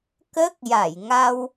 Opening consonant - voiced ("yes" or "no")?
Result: no